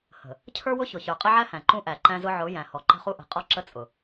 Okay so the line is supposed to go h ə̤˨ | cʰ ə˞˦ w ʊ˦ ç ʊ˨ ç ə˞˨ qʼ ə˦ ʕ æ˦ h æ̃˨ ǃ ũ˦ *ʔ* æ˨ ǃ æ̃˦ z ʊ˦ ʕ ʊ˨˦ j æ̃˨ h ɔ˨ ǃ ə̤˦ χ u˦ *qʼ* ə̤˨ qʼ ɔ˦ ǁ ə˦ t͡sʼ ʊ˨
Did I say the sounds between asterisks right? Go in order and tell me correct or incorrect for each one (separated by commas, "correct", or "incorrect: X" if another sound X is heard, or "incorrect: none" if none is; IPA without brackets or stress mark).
correct, incorrect: ʔ